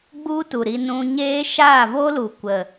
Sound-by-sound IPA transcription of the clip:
ɡ͡bu˦tu˨ ɾi˧nũ˧ɲeː˦ ʃaː˦˨vo˦lu˨ kʷə˨

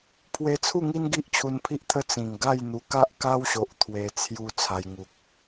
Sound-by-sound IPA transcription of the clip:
pʰwe˧t͡sʰu˥˧ŋi˦n ɡi˦ʔt͡ɕʰu˧npʰi˦ʔt̪ʰə˦ t͡sĩ˨˩ŋ ɡa˥˧jn̪u˧ ka˦ʔka˦wɕo˨ʔ t̪ʰwe˧ t͡sʰju˧ t͡sʰa˧jŋu˨k̚

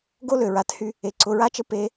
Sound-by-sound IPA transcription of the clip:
ɡo˦lø˨ɹa˨˦thy˦ | e˨ǀʊ˨ɹa˦t͡ʃə˦ pe˦

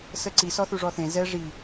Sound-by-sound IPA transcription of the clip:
səǀi sɔθuʐɔθẽ zɛ ʐi

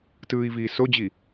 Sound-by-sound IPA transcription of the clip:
tɯːi̯viːsod͡ʑi

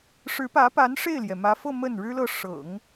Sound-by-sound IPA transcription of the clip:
ʂɻ̩˧˥pä˧˥pa˧˥n ʂe˥˩ɪ̯ljɛ˩mä˧˥fɤ˥˧ mə˥˩n ɻɻ̩˥lɤ˥˩ ʂɤ̰˨˩˦ŋ

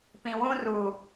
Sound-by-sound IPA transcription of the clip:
pĩ˨wũ˦ru˨

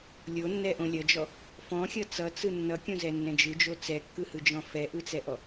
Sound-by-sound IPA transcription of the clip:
lʲonːɛʔõ lʲʌd͡ʒɔ | fɔ̃xʲʌ t͡sʌt͡sɯ nːʌkʲõzɛnːɛ̃ d͡ʒɯd͡ʒo t͡sɛkːɯhɯd͡ʒɔ̃ fɛʔɯt͡sɛʔɔ

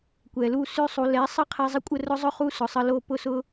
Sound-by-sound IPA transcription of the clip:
kʷɛ˨lu˦˨ sʉ˦ sˤu˧ lɛ˨˦sˤə˦qʰɛ˧ zˤə˦kʷʼə˦rʊ˦zˤʊ˦ χu˦sʊ˨sˤə˧lo˦˨ pʊ˦sʊ˦

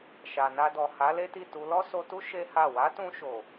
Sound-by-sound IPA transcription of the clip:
ʃa˨na˧dɔ˨ ha˨˦ le˦ti˦˨tu˧ lɔ˦so˧tu˦ ʃe˦ha˦˨ wa˨˦tũ˧ʃo˨

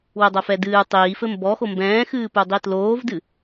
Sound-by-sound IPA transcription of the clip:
wɘdˤɐfɛ dɨː tˤiːfɘ mbɔxo mbɛ̃ːxɨːpudˤi tloːvdɨ

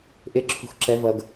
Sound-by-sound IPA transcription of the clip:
ʔɪ ǁʰṳxǁɛvʌɡ

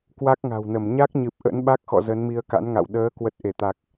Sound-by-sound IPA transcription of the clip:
kwa˦˥k̚ŋa̤˨˩wnə˧˩m ɲa˦˥k̚ɲɨ˨˩p̚ ʔə̰˧˥nɓa˦˥k̚xɔ̰˧˨ zə˨˦nmi˧ə̯ka̰˧˥nŋa̰˧˨w ɗəː˨˦ kwə˨˩t̚ ʔe˧˩t̪a˨˩k̚

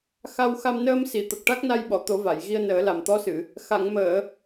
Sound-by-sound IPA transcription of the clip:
xa˧wxa˧m nəː˧msi˨˩˨ t̪ə˨˩k̚ʈa˦˥k̚na˧jɓɔ˨˩˨ t̪o˨˩˦va˨˩˨jɣi˧ə̯ nəː˨˩˦la˨˩mt̪ɔ˧˥sɨ˨˩˨ | xa˨˩˨ŋməː˨˩˨

